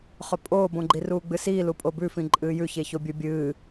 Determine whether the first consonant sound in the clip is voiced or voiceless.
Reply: voiceless